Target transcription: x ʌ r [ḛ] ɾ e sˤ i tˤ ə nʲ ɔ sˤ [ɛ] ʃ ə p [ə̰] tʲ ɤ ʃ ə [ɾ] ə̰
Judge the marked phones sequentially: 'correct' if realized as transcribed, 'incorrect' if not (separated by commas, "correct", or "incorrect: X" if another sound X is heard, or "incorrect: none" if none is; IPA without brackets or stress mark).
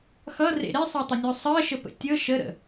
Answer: correct, incorrect: ɜ, correct, correct